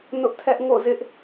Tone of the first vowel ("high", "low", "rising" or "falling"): high